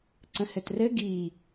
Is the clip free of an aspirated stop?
yes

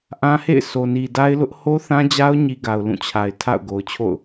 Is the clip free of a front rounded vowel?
yes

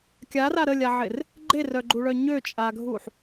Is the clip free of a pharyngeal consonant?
no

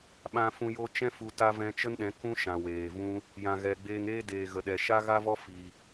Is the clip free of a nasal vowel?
no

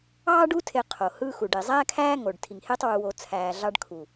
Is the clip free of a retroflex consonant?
no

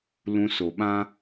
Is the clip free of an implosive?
no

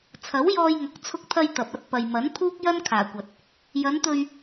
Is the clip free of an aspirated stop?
no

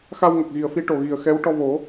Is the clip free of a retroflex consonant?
no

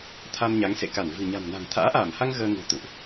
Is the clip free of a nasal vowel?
yes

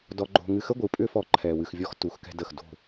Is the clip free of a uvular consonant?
yes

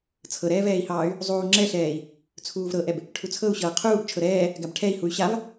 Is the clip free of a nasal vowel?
yes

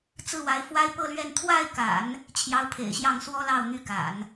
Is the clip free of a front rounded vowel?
no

